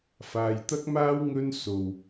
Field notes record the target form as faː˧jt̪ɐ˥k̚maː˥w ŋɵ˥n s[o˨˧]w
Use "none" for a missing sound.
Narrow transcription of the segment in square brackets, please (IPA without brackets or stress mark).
o˨